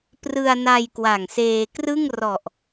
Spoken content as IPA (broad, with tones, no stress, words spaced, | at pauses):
prɯ˧a̯na˧j kwa˨˩ŋseː˧ krɯ˥˩ŋrɔ˨˩ʔ